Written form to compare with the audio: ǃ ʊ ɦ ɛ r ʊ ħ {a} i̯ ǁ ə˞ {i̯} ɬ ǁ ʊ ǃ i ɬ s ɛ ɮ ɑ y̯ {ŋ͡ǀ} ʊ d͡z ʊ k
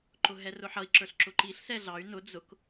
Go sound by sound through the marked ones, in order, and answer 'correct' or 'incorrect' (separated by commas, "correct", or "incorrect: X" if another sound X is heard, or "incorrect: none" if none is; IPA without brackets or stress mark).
incorrect: ʌ, incorrect: none, incorrect: n